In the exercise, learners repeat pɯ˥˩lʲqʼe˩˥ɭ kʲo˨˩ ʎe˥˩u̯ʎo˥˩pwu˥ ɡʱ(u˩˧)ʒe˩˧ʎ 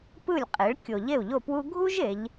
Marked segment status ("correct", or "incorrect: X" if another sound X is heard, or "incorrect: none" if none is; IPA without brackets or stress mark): incorrect: u˥